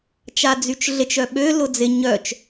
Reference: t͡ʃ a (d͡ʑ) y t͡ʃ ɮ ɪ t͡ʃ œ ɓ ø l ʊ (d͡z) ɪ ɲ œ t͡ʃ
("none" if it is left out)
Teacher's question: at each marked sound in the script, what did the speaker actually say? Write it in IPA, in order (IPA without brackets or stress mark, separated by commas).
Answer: d͡z, d͡z